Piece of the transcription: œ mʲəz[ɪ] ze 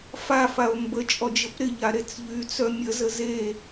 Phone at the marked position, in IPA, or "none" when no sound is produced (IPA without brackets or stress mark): ə